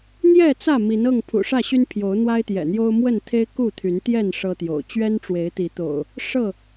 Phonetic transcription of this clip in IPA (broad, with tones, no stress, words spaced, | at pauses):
n̪jɛ˥˨t͡sä˥˨ mi˨˦nɤ˥˨ŋ pʰṵ˨˩ʂä˥˨ɕy˦n pʰjo˨˦ʊ̯n̪wa˦ɪ̯t̪jɛ̰˨˩n̪jo˦ʊ̯ mwə˥˨nt̪ʰe˦ɪ̯ ku˥˨t̪ʰy˨˦nt̪jɛ˥˨n ʂɤ˦t̪jo̰˨˩ʊ̯ t͡ɕɥɛ˦nʈ͡ʂwe˨˦ɪ̯t̪i˨˦t̪o̰˨˩ʊ̯ | ʂɤ˥˨